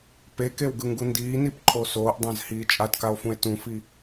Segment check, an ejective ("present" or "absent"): present